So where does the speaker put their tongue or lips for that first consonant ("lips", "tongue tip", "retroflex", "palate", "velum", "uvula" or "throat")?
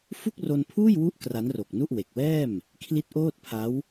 lips